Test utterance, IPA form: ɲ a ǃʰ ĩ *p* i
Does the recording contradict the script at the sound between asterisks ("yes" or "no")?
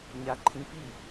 no